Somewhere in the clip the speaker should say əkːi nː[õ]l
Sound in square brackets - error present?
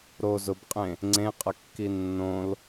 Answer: no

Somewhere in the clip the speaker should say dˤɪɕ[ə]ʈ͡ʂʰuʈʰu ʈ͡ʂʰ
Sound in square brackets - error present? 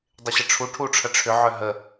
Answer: no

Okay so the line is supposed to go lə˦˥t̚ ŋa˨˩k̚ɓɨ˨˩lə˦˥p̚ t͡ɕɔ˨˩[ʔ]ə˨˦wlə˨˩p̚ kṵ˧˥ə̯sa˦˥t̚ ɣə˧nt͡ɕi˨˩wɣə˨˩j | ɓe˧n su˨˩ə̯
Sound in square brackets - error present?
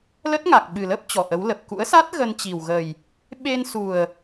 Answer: no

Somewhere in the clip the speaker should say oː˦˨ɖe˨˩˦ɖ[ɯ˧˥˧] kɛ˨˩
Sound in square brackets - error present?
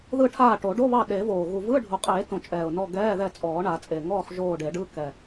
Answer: no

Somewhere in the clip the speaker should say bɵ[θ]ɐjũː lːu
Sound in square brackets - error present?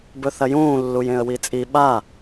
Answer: no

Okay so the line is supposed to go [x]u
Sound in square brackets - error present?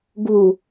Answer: yes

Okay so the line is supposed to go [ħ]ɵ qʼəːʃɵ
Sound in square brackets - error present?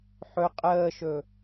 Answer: no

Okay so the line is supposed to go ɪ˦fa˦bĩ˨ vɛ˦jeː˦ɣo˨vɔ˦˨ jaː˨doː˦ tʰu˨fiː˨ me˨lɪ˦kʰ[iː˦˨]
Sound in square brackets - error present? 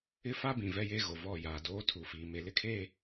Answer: yes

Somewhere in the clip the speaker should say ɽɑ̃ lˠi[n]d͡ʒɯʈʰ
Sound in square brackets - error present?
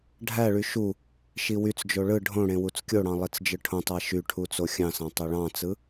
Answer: yes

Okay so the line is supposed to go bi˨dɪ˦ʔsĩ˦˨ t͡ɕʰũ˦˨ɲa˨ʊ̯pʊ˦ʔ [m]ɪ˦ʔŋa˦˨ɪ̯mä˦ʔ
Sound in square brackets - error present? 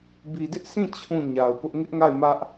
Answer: yes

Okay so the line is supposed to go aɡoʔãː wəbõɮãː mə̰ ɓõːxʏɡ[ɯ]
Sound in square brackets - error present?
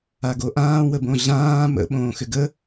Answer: yes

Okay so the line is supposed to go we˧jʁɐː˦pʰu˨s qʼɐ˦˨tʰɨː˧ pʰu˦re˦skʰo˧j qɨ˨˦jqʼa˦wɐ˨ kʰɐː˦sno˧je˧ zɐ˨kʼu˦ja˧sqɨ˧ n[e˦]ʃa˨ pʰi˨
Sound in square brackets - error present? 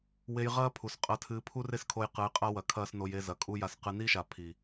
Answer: yes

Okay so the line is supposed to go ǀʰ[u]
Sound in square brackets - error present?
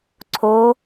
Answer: yes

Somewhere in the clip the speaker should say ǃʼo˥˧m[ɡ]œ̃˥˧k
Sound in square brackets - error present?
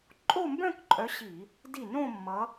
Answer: yes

